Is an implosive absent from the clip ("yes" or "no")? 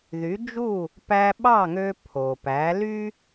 no